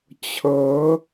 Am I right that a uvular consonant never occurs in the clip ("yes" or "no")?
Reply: yes